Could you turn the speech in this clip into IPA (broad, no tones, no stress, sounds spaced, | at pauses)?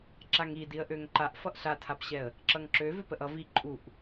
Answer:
ǁ a ŋ i d i ə̯ ʔ ø ŋ ǃ a ʔ f ʌ ʔ ɬ a tʰ a p ɕ ɛ ə̯ | ǁ ʌ ŋ ǁ ø v ø p ə ʔ ʌ v i ǃʼ u ʔ